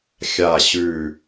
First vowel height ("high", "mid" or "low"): low